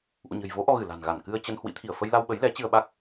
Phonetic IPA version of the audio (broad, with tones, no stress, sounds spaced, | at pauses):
ʔ ṵ˧˨ ɲ ə̤˨˩ j v o˨˦ ʔ ɔ˧ ɣ ɨ˧˩ l a̤˨˩ n ɣ a˧˩ n k ɨ˧ ə̯ t͡ɕ ə˧ n h w ḭ˧˥ t̪ʰ i˧˩ ə̯ f ə˧ j l a˧ w ɓ ə˨˦ j l ɛ˨˦ t͡ɕ ɨ˧ ə̯ ɓ a˦˥ k̚